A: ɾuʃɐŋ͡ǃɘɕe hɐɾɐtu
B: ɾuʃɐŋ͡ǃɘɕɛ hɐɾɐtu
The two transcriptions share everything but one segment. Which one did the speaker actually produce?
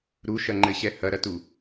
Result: B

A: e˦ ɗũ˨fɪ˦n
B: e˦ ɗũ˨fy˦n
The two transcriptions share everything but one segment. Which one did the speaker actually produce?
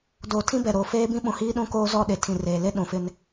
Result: A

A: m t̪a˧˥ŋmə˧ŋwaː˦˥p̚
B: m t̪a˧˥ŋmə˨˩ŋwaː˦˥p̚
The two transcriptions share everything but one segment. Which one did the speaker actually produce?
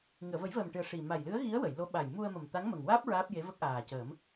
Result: B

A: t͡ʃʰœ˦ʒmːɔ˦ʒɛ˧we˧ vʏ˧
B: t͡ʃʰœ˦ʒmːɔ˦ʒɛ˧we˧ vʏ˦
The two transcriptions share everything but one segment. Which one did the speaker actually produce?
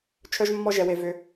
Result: A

